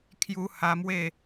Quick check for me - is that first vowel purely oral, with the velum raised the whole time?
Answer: yes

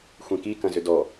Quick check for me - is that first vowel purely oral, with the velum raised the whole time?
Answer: no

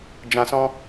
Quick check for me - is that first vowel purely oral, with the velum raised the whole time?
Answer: no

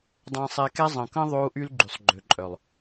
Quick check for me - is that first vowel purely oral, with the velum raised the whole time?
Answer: no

